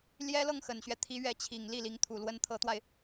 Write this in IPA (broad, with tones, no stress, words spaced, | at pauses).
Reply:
ljɛ˥ lɤ˥˩ŋxə˨˩nɕɥɛ˦ t̪ʰi˧˥ɥɛ˧˥t͡ɕʰi˨˩ŋ li˥˩li˧˥ŋ t̪ʰu˨˩lwə˧˥nt̪ʰɤ˧˥t̪wa˧ɪ̯